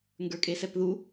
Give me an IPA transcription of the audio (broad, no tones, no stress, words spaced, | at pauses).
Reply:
ŋɡə˞kʼesɛpðu